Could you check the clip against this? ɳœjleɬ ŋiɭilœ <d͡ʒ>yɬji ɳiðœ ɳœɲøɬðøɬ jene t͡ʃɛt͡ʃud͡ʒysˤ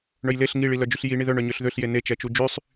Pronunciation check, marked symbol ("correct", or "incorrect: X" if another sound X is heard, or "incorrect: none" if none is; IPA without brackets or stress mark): correct